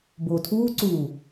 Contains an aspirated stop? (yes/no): yes